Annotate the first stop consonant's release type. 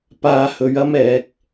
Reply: plain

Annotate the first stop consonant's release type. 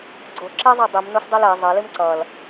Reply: click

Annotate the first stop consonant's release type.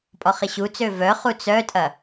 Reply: ejective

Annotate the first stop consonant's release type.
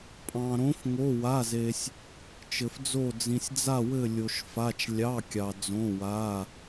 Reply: ejective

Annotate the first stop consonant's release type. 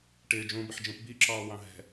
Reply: plain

